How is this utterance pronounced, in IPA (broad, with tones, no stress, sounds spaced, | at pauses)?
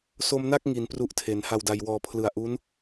s o˧ m n a˥˩ k̚ ŋ i˩˦ n p r u˦˥ ʔ tʰ e˩˦ n h a˨˩ w d a˨˩ j w ɔː˨˩ pʰ l ɯ˨˩ a̯ ʔ u˦˥ n